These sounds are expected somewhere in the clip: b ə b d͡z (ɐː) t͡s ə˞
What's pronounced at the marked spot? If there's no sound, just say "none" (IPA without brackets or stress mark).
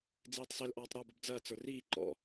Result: ɐː